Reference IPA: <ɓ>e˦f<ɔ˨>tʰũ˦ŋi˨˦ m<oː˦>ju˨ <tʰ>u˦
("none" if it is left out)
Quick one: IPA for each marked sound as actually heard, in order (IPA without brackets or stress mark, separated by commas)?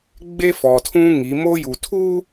ɡ͡b, ɔ˨, o˦, tʰ